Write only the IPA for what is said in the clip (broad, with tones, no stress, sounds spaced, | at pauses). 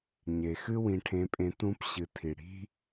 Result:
ɲ e˩ x ɨ˥ w ĩ˧ ʈʰ ẽ˧˥ pʼ ẽ˧˥ t̪ ũ˧˥ p ɕ ɨ˩ tʰ i˩ ɽ i̤˥